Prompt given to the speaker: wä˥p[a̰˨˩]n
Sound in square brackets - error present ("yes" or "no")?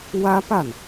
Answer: yes